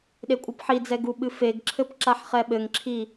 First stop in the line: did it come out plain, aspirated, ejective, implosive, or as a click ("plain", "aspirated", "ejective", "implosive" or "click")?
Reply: implosive